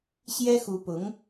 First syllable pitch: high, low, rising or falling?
high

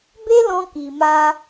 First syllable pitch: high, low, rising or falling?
high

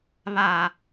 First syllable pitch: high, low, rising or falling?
low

